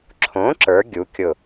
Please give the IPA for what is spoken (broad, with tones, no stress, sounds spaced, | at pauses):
ǁʰ õ˩˥ ǁ ə˞˩˧ ɡʲ u˩˥ kʲ ʊ˧˩